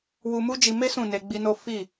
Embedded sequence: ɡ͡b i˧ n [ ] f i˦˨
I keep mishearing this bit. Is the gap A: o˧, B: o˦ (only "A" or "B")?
B